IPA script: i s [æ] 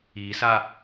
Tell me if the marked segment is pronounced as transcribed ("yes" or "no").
no